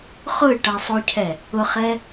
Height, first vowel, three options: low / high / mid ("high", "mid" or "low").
high